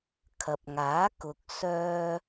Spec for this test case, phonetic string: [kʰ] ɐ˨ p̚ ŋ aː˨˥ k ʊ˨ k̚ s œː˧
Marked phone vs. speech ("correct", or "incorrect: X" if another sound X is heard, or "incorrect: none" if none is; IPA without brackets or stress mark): correct